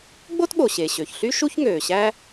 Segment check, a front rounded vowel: present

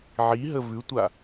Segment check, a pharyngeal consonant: present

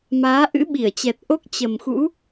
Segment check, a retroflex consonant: absent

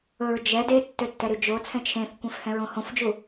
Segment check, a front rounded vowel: present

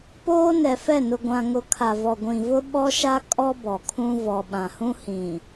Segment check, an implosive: present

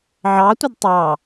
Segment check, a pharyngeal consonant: present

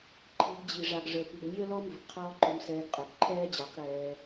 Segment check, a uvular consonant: present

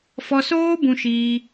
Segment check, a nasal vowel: present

